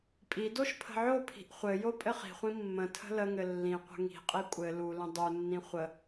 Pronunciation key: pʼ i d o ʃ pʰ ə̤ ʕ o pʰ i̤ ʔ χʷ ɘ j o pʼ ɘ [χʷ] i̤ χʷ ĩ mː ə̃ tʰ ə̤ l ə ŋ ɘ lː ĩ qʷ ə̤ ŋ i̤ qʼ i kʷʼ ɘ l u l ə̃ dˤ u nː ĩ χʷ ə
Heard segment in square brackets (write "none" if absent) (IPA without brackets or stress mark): χ